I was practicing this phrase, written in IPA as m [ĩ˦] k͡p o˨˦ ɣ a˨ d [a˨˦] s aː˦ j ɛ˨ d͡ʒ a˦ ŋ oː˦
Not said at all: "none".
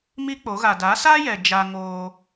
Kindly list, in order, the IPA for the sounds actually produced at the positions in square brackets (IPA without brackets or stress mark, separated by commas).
i˦, a˨˦